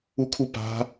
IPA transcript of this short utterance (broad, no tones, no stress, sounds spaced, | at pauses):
u kʰ u p a̤